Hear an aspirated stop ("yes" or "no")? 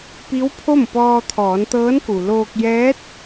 yes